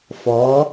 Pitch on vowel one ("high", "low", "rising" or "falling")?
rising